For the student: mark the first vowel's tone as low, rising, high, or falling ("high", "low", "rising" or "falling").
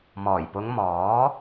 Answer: low